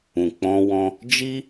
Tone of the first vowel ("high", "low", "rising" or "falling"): low